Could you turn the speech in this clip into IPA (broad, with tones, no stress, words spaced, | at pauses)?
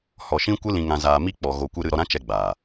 hɔ˧ʃĩ˦kʷɨ˦lĩ˧ ŋã˧zaː˧mi˦ k͡pɔ˧ɣo˧ kʷɨ˧ ɾɨ˧ ɾɔ˧ɾã˦t͡ʃɛ˧ɡ͡baː˨